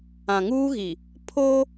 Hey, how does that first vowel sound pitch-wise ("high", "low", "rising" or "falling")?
low